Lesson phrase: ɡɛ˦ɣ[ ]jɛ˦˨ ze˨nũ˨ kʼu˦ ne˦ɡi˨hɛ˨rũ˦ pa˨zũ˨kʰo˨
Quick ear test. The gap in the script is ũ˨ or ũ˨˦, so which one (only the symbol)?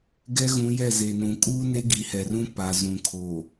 ũ˨˦